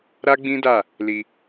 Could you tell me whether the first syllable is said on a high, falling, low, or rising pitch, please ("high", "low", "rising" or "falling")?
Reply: high